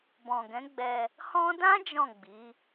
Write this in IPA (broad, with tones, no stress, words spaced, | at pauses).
bɔ̃˨ɡɛ̃˨˦ɡ͡bɛ˧ | hɔ̃˦ dã˦ d͡ʒɔ̃˦˨ɡ͡bi˨˦